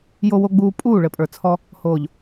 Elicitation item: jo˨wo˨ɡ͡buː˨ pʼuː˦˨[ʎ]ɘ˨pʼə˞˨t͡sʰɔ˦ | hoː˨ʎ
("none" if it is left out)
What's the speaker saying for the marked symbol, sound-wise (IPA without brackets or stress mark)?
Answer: ɭ